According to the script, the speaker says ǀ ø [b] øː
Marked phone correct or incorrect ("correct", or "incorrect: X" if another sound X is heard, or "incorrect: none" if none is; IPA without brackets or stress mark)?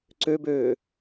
correct